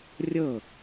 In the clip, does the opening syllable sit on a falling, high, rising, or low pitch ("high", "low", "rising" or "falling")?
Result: falling